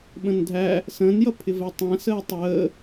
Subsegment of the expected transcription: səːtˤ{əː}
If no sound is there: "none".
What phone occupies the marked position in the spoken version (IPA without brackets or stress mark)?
əː